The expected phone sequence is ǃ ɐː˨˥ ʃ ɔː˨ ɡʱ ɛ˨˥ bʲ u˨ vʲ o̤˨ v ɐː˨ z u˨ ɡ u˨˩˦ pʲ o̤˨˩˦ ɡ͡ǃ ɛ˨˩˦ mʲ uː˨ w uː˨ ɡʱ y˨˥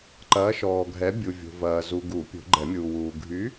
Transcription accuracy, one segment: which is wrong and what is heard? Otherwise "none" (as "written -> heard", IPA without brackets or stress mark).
none